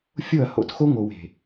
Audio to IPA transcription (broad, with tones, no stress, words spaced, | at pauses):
fʲo˦˨ɐ̯ho̰˨txo˦ ŋo˨we̤˨